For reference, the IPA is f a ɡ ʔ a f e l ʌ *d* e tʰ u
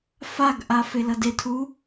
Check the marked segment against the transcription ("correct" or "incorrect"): correct